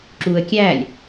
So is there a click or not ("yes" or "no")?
yes